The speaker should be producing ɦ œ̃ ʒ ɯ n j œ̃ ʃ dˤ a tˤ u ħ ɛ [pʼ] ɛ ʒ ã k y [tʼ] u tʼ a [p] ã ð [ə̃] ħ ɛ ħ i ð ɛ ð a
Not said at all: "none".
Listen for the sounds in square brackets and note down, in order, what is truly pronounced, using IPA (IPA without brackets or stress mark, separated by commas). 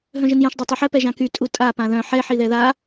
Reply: p, tʼ, p, œ̃